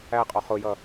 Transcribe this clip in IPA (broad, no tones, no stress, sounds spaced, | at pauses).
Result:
æ qʼ ɔ χ ʊ j ʌ